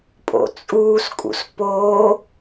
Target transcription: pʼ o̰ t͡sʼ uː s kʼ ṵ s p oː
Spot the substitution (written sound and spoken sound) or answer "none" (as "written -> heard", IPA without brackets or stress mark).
none